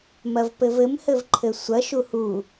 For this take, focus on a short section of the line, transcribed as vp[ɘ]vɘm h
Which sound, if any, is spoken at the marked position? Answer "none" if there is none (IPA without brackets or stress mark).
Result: ɘ